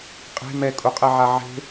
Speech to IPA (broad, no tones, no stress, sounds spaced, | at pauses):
qʼ e̤ m ɛ kʼ u qʼ ɛ ʕ a ʕ e̤